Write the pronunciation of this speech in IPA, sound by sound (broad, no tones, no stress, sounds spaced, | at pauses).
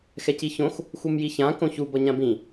x ɛ c i ç õ x | x u m j i ç ã k õ ç u b ʌ ɲ ã b ĩ